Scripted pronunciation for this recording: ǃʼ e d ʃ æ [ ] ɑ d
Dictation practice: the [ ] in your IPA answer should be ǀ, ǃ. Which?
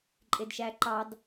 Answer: ǃ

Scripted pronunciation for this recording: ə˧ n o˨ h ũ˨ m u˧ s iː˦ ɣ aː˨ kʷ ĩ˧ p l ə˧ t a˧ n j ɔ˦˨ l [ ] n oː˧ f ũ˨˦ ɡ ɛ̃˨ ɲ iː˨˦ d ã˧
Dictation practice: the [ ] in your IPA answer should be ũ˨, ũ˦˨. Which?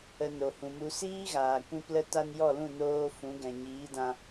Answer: ũ˦˨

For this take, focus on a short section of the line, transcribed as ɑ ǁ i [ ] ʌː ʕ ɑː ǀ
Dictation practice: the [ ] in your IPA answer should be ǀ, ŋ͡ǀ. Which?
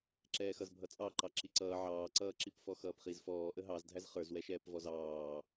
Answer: ǀ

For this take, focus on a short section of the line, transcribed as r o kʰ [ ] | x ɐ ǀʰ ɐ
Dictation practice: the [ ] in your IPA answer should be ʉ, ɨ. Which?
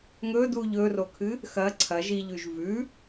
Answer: ɨ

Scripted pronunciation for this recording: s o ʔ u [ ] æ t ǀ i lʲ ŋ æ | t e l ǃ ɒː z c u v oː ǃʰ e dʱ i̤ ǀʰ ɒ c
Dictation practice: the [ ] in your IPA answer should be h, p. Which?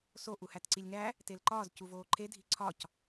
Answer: h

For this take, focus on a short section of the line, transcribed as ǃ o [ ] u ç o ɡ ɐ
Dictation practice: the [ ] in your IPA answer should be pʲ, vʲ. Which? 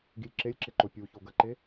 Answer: pʲ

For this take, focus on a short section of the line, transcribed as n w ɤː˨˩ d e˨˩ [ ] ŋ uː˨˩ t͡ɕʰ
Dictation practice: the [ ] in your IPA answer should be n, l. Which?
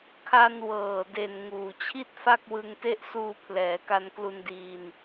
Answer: n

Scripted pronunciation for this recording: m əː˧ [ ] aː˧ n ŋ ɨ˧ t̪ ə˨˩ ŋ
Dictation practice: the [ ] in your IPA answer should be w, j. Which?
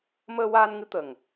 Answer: w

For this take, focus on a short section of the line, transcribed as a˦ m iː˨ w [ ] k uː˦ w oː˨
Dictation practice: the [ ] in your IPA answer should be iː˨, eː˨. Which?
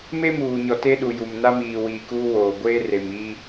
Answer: iː˨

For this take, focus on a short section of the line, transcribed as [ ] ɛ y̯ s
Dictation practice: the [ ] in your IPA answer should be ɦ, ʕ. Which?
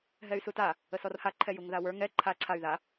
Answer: ɦ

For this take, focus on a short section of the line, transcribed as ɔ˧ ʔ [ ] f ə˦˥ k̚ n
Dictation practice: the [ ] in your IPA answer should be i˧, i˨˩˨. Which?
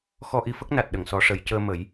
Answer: i˧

